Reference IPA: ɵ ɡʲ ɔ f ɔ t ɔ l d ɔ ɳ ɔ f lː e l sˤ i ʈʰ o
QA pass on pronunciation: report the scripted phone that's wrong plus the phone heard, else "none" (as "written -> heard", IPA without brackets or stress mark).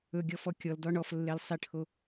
t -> kʲ